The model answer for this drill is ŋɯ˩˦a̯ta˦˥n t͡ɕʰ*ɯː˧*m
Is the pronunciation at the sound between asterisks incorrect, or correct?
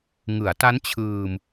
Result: correct